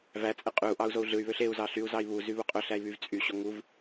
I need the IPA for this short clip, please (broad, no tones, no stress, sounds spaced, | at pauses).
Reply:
v æ t͡sʼ e qʼ y u̯ ʔ ɑ u̯ z o u̯ ɮ ɯ y̯ β ø ɬ e u̯ z ɑ ɬ y u̯ z ɑ i̯ β u z y β u qʼ ø ɬ æ i̯ β y v t͡sʼ y ɕ o ŋ u v